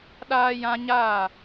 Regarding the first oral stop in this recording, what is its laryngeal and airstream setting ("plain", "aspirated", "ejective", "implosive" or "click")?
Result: implosive